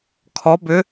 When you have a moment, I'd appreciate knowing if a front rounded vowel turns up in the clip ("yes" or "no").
yes